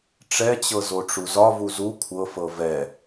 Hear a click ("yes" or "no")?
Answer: no